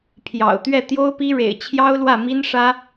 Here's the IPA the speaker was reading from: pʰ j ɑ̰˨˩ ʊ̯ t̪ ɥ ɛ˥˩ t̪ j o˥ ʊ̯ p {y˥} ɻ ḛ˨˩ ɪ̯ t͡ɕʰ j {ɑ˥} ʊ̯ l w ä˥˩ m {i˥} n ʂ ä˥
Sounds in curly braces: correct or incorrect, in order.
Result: incorrect, correct, correct

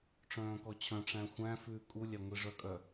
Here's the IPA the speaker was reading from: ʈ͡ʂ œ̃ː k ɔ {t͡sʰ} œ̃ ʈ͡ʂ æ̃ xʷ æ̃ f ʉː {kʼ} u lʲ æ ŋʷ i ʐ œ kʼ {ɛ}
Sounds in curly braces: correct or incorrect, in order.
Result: incorrect, correct, incorrect

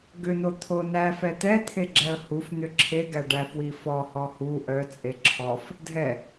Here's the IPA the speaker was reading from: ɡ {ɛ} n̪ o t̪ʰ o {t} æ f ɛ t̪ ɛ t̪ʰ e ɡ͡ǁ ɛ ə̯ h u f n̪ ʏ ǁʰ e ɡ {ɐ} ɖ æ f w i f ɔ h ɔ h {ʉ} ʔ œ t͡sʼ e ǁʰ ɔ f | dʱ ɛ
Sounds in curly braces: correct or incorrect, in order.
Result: incorrect, incorrect, incorrect, incorrect

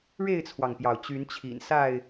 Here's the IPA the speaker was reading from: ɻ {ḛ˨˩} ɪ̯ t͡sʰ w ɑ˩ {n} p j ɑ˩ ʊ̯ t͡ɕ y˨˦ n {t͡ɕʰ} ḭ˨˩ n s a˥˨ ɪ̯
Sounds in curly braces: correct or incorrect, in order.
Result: incorrect, incorrect, correct

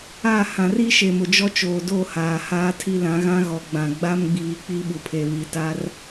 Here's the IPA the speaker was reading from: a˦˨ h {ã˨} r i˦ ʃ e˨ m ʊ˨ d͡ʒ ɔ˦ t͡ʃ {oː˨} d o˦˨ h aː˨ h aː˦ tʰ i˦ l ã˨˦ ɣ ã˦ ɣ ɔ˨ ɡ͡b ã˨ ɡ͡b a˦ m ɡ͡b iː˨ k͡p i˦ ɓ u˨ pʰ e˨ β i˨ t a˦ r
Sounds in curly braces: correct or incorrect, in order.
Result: correct, correct

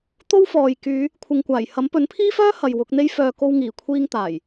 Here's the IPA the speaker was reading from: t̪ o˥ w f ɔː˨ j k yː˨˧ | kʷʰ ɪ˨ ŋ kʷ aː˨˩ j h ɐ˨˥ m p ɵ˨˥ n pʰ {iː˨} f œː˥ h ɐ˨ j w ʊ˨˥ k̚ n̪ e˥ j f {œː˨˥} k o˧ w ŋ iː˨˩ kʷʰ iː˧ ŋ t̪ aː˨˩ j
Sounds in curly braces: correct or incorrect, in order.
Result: incorrect, incorrect

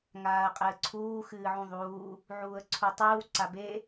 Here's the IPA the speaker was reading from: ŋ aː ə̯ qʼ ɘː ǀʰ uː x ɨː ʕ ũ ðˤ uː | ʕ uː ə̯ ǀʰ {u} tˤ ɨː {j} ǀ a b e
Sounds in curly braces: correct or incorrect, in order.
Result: correct, incorrect

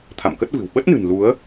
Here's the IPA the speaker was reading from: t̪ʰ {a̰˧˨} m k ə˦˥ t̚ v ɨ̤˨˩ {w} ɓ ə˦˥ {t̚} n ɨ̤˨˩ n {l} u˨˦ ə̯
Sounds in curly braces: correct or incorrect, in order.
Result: correct, correct, correct, correct

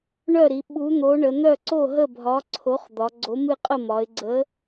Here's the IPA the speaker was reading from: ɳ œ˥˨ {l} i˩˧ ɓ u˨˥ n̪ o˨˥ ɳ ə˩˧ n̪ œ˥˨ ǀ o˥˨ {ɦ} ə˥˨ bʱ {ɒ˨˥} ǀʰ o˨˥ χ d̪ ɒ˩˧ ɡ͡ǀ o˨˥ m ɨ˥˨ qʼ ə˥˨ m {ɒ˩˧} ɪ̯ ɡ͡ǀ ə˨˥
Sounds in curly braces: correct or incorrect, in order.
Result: incorrect, correct, correct, correct

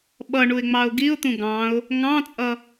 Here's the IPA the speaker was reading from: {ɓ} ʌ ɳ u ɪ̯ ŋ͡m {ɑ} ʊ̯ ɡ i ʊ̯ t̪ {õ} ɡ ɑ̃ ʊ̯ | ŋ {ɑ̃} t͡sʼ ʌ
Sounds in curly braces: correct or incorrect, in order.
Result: correct, correct, incorrect, correct

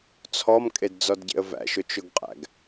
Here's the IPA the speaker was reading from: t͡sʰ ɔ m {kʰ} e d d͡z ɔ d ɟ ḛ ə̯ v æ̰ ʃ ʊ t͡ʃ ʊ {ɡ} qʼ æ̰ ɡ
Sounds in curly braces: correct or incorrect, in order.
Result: incorrect, correct

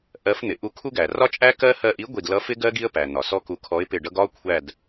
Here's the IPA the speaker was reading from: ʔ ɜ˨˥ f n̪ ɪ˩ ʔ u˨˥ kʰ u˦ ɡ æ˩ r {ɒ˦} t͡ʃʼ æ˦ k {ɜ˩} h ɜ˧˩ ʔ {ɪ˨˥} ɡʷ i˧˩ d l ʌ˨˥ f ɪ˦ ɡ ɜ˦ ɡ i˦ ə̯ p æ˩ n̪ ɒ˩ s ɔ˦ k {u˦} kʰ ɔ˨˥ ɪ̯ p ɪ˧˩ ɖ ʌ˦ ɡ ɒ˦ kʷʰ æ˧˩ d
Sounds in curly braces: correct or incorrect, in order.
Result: correct, incorrect, incorrect, incorrect

